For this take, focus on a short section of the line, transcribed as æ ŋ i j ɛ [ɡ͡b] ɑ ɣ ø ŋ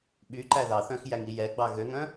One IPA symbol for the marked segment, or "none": ɡ͡b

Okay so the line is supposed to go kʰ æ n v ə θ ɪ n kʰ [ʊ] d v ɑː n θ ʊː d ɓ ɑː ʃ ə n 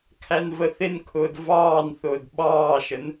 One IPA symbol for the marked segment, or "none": ʊː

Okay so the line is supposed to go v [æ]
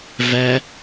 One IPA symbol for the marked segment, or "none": æ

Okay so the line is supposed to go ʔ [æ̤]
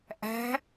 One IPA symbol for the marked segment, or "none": æ̤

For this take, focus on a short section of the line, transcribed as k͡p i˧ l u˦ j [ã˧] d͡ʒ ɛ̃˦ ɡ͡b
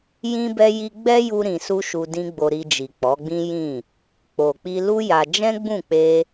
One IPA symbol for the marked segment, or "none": a˧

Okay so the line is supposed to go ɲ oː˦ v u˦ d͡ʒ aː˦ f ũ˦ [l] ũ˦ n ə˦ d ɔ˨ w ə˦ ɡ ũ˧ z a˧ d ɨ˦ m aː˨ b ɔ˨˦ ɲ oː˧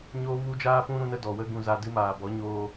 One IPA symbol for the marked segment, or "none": ɾ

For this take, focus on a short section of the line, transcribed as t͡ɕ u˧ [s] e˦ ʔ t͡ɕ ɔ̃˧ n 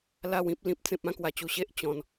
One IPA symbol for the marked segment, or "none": ɕ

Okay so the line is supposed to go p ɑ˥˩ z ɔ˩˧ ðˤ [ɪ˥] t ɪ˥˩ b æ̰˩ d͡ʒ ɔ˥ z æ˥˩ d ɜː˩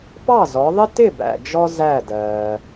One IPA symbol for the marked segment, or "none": ɪ˥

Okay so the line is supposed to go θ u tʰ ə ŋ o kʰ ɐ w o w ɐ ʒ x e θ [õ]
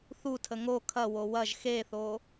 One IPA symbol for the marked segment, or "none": o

